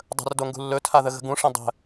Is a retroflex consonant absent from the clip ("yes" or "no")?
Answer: no